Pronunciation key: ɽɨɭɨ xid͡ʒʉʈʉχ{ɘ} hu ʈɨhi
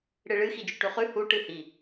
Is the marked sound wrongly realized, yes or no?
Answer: yes